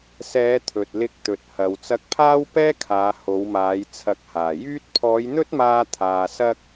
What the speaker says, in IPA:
sɛː˨˧ t̪ʰɵ˨t̚lɪ˧k̚t̪ɵ˨t̚hɐ˨w t͡sɐ˧k̚pʰaː˥wpɛː˥kʰaː˨˧ ho˨˧wmaː˨˧j t͡sʰɐ˨˥k̚haː˨˩ jyː˧t̚pʰɔː˨˧j n̪ɵ˥t̚maː˧t̪ʰaː˨ sɐ˥k̚

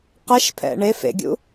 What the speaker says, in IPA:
qɛʃpʰɛ̰ ɳe fḛɡʲṵ

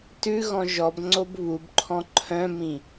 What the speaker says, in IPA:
tʉ ɣɔ̃ʒɔbŋ͡ǀob βubǃʰɔ̃ ǃʰœ̃mĩ

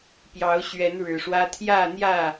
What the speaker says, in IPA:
pjɑ˨˦ʊ̯ɕɥɛ˨˦nɻɻ̩˨˩ʂwä˦ t̪ʰjä˥˨n̪jä˥˨

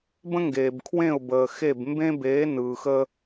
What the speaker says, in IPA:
bə̃˦ŋɡeː˨b kʰwẽ˦˨ʊ̯bəː˨xe˦˨b mbẽ˦beː˨˦ nɯː˨xəː˦

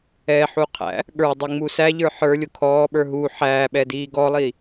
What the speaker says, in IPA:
ɛħuqʰæ̰ | ɠə˞dˤiŋ͡mu sæʎə˞ ħə˞lʲʊ kʰɔːɓə˞ ɦu ħæːɓɛdiː ɡɔlˠi

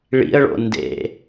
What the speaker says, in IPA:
ɭḭə̯ɭo̰ ndḛ

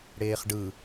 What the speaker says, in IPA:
ɽeːχɖɯ

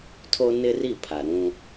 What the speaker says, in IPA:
tʰo˦nɪ˦ri˦˨ pʰa˨ɾũ˦

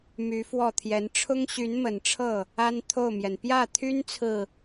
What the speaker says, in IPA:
my˧˥fwɔ˥˩t̪ʰjɛ˧˥n ʈ͡ʂʰʊ˥ŋɕy˧˥nmə˨˩nʈ͡ʂʰɤ˥˩ | a˥n t̪ʰo˥˩ʊ̯mjɛ˩n pjä˥˩t̪ʰy˥n t͡sʰɹ̩˥˩

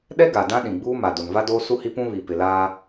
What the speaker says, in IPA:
ɗɛ˦ ɡa˨dã˦ ɗĩ˨ɡ͡buː˦ma˨do˨n va˦doː˦ su˦hi˦pũ˦βi˨ pɪ˨ laː˦

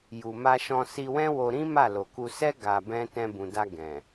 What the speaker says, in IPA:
ju˨ma˧ʃɔ̃˧ si˧wɛ̃˦wo˧ɾĩ˦ ma˦˨lo˨ku˧ sɛ˦ ɡa˧bɛ̃˦ tɛ̃˧bũ˨da˧ ɡɛ̃˨

